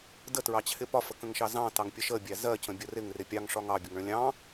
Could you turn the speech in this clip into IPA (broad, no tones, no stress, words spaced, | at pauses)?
dətɹɑt͡ɕʰɪ pɒfəkə̃ŋʃɑ zɑ̃tɑŋpʲə ʃəbʲæ zɜcə̃bʲə rɪŋrɪ pʲɑŋʂɒŋ ɑbʲʊŋɭə̃ lʲɑ̃